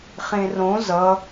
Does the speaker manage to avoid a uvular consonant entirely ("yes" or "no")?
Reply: no